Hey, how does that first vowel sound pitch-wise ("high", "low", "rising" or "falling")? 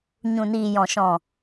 low